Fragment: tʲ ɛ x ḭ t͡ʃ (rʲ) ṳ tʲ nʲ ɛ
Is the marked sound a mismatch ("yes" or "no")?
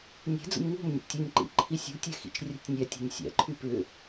no